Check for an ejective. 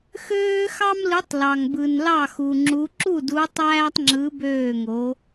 absent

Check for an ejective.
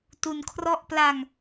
absent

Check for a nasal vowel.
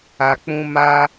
present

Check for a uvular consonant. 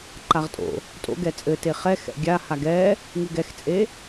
present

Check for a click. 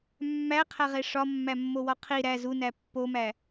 absent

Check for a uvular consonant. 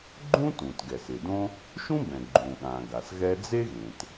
absent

